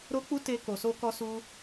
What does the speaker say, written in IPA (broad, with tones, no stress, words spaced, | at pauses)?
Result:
ɾo˦k͡pu˦ te˦ko˧so˦ kɔ˦su˦